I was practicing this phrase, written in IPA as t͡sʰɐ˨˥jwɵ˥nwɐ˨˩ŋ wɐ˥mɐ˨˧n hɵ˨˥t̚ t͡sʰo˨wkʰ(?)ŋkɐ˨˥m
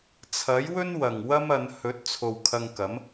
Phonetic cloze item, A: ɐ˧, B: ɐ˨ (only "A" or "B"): A